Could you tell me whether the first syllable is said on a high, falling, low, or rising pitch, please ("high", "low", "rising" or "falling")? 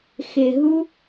low